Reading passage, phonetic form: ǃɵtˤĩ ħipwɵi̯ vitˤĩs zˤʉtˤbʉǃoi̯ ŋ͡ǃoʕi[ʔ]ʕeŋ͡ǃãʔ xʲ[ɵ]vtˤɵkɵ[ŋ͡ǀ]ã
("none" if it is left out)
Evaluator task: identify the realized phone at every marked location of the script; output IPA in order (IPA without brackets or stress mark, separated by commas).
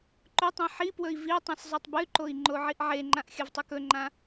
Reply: ʔ, ɵ, ŋ͡ǃ